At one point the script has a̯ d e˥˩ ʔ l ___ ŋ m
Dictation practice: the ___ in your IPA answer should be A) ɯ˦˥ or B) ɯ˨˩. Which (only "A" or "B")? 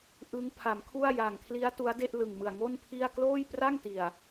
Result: B